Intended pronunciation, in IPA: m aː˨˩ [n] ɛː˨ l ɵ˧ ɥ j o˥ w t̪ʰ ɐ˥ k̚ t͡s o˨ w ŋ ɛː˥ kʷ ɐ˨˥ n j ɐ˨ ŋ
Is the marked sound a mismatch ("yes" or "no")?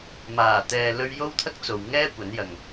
yes